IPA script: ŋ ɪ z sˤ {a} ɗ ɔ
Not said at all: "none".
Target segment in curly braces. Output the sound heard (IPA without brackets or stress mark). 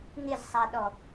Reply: a